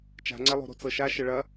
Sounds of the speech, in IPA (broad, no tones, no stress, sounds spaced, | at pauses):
t͡ʃ a̤ ŋ͡ǀ ɛ lˠ o̤ ɾ o̤ t͡s ɤ ʃ a ʃ ə ɭ ɐ